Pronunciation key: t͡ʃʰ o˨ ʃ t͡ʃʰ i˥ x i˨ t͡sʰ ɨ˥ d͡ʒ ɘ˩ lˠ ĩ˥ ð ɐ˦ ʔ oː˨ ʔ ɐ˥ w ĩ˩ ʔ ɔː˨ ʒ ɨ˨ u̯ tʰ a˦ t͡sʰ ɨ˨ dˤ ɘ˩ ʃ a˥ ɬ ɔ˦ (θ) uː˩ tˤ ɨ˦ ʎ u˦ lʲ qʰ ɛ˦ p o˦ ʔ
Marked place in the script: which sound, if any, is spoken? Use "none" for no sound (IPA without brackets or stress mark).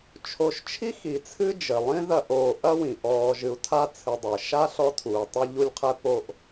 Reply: tʰ